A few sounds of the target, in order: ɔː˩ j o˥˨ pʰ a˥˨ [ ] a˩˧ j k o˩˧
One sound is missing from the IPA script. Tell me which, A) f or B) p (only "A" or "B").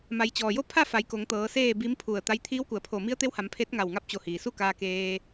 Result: A